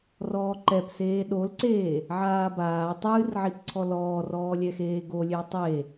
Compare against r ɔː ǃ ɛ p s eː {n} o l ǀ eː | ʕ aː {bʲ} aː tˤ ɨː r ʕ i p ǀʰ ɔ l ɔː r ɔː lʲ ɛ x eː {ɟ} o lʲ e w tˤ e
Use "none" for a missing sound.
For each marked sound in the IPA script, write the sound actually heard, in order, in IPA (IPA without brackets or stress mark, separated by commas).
ɗ, b, ɡ